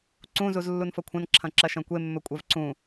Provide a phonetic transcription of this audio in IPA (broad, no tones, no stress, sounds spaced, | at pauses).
ǀ ũ z u z lː u n f ɐ kʷʰ ɐ̃ n ǁʰ ɐ̃ ǁ ɐ ʃ ɐ̃ kʷ e mː ɵ kʷʼ ɛ v ǀ ũ